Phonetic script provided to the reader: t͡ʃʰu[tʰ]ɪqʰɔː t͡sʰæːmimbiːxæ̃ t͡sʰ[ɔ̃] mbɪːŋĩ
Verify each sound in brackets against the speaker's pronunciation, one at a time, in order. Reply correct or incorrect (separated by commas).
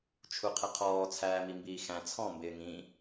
incorrect, correct